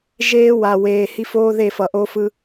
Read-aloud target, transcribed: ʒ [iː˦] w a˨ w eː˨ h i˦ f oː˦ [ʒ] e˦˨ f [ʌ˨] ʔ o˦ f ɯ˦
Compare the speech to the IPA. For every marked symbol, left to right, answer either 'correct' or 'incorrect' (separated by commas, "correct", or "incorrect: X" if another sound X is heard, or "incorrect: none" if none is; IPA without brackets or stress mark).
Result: incorrect: eː˦, incorrect: ð, correct